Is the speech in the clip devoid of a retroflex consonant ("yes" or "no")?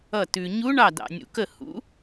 no